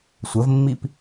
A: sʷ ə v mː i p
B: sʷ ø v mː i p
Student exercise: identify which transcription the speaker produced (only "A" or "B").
A